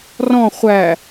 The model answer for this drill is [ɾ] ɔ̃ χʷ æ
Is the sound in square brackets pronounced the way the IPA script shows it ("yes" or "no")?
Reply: no